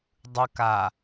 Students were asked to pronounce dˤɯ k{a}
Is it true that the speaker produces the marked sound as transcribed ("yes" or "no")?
yes